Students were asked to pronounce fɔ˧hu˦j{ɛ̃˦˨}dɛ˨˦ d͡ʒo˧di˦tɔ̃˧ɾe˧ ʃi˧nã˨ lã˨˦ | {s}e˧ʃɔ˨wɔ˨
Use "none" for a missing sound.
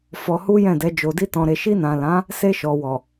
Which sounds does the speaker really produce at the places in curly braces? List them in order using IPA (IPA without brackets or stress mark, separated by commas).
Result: ɛ̃˦˨, s